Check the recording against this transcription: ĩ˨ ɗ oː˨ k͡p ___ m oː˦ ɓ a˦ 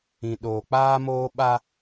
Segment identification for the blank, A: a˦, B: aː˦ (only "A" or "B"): B